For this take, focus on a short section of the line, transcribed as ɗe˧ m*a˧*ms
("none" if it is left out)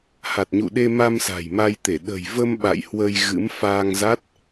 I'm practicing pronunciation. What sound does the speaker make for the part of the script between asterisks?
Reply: a˧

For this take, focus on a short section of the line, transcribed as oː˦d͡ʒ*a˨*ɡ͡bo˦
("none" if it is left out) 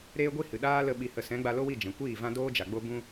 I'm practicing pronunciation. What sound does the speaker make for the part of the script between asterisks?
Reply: a˨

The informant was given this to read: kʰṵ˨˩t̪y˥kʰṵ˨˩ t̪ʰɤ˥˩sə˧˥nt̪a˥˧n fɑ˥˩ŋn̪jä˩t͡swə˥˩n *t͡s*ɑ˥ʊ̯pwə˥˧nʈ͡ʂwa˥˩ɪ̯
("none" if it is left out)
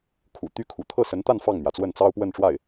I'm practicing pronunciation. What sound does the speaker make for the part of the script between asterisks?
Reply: t͡s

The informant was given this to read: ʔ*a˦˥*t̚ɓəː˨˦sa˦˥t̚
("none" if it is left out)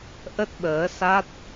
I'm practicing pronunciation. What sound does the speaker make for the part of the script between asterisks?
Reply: ə˦˥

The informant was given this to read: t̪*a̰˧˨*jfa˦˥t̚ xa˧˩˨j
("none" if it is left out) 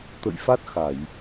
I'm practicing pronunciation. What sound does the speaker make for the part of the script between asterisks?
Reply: ə̰˧˨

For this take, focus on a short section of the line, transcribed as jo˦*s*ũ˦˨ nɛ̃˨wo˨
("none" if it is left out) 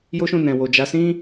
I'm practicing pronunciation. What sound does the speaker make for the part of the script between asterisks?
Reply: ʃ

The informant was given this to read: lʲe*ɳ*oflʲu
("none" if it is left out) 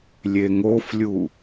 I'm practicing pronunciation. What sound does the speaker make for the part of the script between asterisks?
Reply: ŋ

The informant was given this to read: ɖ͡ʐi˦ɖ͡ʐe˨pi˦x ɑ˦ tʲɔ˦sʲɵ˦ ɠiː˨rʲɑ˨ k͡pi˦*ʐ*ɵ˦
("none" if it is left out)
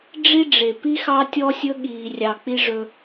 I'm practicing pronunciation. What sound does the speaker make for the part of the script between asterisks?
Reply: ʐ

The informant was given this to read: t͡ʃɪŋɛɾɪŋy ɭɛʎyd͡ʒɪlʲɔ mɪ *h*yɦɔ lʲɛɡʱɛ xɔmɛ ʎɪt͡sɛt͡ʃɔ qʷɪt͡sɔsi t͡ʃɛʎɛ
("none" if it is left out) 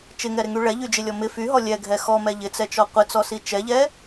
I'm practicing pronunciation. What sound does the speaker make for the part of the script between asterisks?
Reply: f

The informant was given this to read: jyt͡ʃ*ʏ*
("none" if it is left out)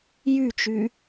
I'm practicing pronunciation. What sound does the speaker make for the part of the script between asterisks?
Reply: y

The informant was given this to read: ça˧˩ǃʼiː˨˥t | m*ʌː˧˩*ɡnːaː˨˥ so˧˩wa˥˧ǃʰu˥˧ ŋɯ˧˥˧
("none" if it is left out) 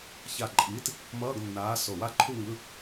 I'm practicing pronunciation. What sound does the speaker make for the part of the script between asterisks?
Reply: ʌː˧˥˧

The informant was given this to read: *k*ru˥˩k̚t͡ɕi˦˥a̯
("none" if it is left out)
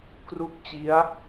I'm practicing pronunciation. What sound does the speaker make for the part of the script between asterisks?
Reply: k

